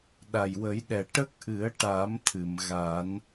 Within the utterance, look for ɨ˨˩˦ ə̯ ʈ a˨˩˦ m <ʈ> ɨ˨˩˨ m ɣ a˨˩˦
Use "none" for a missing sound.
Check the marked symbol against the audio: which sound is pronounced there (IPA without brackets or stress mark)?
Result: t̪ʰ